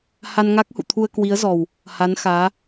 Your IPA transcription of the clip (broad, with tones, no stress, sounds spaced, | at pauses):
h a˧ n ŋ a˦˥ k̚ h ṵ˧˨ t̪ʰ u˧ ə̯ k w i˨˦ ə̯ z ɔ˨˩ w | h a˨˦ n x aː˨˦